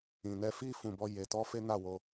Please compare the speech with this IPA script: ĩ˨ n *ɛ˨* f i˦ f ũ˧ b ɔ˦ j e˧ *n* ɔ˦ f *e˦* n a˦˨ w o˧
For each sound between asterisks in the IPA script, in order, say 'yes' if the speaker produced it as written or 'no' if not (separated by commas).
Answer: no, no, yes